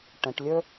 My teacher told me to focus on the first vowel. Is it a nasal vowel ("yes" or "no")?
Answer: yes